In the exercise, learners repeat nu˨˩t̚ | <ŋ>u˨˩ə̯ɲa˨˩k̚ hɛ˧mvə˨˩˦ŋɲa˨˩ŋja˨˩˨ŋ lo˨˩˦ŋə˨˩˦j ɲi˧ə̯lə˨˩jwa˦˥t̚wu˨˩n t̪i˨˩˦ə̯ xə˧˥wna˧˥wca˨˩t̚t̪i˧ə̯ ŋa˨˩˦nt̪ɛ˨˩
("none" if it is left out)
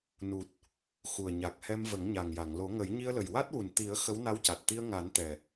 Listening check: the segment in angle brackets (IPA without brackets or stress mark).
x